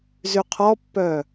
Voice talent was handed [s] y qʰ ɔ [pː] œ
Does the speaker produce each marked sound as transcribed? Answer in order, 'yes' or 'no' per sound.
no, yes

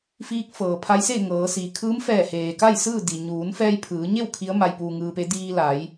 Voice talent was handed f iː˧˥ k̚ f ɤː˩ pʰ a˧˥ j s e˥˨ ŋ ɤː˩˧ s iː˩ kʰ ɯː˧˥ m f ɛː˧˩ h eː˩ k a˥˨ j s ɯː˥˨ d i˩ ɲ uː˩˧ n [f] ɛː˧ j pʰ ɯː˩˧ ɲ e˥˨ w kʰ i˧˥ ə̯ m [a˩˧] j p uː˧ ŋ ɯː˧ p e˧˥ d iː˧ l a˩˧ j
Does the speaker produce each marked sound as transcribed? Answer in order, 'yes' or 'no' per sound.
yes, no

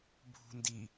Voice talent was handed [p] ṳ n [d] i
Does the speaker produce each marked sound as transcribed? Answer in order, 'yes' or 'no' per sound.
no, yes

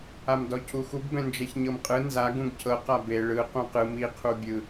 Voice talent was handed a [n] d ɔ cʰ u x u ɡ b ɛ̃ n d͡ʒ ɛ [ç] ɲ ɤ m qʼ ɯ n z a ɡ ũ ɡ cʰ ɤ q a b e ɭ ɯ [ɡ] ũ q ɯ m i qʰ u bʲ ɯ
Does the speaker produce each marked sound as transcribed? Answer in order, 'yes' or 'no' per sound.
no, yes, no

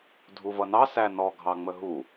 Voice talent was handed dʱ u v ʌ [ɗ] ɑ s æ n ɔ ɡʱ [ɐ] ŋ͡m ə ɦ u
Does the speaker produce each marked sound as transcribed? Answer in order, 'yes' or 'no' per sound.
no, no

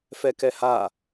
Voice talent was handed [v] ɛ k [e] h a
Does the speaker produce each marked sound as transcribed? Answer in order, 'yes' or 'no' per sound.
no, no

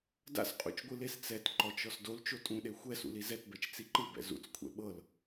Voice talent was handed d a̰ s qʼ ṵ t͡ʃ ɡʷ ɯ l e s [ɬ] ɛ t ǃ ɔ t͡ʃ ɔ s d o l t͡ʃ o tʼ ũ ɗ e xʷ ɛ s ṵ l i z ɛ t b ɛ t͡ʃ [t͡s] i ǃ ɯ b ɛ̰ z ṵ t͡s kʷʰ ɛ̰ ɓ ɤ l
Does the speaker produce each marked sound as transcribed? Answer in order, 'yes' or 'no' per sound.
no, yes

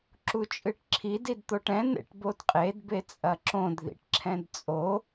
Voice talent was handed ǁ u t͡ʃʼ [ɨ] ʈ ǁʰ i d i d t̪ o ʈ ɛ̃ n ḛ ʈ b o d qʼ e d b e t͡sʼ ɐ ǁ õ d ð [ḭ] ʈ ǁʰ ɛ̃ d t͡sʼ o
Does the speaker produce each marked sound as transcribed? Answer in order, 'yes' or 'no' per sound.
yes, yes

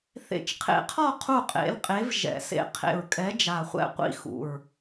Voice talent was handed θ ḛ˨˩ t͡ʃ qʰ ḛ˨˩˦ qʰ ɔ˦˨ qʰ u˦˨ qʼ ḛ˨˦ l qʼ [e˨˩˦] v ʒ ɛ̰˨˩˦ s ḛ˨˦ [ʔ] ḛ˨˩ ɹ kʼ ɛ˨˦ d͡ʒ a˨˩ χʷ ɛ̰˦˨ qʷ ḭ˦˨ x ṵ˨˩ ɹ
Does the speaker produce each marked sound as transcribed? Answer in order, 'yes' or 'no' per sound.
no, no

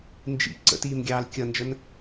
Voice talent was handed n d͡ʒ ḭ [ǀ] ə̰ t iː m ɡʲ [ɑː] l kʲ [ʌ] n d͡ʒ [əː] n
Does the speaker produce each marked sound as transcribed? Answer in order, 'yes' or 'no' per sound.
yes, yes, yes, no

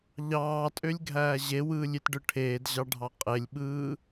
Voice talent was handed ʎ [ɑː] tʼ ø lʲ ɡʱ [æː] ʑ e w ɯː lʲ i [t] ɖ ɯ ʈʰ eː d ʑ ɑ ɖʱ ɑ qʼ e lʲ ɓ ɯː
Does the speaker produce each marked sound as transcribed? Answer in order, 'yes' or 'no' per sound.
yes, yes, yes

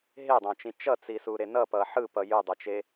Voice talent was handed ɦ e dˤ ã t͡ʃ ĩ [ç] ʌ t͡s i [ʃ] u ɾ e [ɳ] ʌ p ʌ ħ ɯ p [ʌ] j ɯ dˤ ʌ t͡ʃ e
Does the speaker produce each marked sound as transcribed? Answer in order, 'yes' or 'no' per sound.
no, no, no, yes

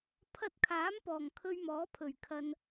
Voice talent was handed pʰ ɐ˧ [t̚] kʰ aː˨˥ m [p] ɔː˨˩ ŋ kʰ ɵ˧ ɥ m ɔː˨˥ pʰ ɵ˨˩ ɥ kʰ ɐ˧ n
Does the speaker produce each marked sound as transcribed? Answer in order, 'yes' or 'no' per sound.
yes, yes

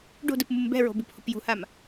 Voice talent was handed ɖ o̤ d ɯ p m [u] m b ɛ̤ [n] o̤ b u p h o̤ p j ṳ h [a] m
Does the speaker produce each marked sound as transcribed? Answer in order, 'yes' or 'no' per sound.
yes, no, yes

